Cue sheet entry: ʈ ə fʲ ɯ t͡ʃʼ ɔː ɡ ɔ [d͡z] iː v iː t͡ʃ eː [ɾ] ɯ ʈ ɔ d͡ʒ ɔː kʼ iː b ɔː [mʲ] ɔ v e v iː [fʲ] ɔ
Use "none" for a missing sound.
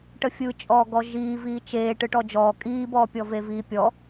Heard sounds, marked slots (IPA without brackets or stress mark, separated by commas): ʒ, ʈ, pʲ, pʲ